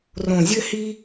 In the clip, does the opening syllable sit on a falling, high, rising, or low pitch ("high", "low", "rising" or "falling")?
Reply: low